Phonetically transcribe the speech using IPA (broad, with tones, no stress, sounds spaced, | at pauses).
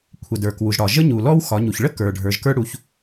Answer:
kʷʰ ə˩ d ə˞˩ k w u˩ ʒ ɽ ɒ˩ ʒ ə˥ ɲ u˩ l ɔ˥ w x ɒ˩˧ ɲ u˩ ç ɭ ə˥ k ə˞˩ ɖʱ ə˞˩˧ ʒ k ə˞˥ ɽ u˩˧ ç